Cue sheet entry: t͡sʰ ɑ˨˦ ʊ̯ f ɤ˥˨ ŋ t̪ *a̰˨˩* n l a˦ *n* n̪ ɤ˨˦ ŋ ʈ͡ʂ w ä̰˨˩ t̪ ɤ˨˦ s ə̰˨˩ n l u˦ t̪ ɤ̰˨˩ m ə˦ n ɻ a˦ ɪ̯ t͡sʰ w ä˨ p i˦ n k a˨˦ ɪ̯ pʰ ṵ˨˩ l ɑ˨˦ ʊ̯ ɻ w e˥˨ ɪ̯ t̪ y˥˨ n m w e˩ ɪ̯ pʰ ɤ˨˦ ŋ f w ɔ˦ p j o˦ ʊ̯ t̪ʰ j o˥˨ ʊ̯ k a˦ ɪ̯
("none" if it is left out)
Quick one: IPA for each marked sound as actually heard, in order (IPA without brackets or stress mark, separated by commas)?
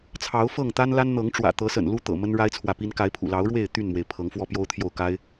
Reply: a˦, n